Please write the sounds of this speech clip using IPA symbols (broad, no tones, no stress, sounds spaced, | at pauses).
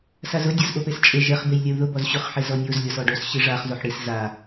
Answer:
s a z ʊ dʲ ɔ z ʔ o p e s t͡ʃʼ e ʒ ɛ χ b e j lʲ ɛ u̯ ð ʊ b ɔ z ɕ ʊ χ ħ e z ɔ nʲ o z lʲ ɔ s ɔ ɖ o s ɕ i ʐ a χ z o ħ ɽ i s z a